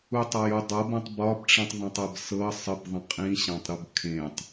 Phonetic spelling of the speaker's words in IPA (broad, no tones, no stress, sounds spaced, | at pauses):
u tˤ ɒ j u dˤ ɤ b ũ tˤ b ɒ b ʈ͡ʂ ĩ tˤ ðˤ ɛ̃ tˤ ɛ b s ɤ sˤ ə b ðˤ ə̃ qʼ ĩ ɕ ã tˤ ɾ u b kʰ ẽ tˤ